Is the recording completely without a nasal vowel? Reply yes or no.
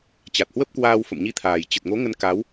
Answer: yes